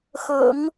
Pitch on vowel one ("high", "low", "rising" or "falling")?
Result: low